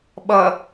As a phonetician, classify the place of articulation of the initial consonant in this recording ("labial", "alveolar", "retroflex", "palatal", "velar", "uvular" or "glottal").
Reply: labial